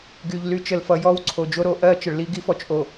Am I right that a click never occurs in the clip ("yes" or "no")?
no